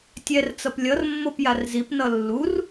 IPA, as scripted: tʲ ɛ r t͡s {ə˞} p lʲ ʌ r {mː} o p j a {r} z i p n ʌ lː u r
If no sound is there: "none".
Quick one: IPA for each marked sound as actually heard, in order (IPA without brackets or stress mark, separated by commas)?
ʌ, mː, r